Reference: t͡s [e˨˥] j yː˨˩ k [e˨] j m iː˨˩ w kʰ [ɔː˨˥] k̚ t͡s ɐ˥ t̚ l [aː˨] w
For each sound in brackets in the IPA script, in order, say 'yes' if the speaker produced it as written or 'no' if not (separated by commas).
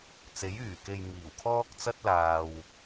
yes, yes, no, yes